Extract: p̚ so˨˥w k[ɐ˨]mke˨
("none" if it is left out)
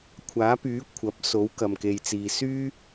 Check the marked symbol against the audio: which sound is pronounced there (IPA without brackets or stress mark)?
ɐ˨